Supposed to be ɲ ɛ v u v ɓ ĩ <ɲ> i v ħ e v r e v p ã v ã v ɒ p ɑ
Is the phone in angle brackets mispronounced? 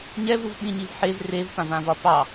no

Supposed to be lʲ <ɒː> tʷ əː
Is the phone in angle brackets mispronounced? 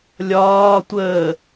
no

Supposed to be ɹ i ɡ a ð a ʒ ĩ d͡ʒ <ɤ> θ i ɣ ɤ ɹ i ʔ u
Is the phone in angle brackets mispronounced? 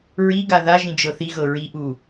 no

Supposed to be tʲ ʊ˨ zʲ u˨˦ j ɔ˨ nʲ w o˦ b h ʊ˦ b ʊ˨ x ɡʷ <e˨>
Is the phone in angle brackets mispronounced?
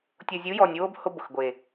no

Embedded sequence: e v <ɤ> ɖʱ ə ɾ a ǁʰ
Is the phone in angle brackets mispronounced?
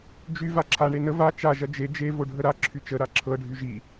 yes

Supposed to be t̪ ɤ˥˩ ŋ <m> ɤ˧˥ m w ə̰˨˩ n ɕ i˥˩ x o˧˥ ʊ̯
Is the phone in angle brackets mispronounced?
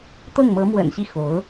no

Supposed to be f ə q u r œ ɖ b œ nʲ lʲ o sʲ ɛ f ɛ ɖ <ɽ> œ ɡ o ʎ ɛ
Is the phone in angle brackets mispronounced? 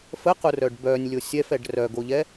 yes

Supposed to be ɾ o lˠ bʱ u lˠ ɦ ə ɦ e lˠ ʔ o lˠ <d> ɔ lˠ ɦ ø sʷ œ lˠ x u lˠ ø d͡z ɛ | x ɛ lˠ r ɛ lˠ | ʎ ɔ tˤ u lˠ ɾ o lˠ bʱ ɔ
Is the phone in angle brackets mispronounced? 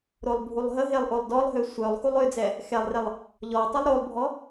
no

